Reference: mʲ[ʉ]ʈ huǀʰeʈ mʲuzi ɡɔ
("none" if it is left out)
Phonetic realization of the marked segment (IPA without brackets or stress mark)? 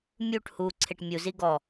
u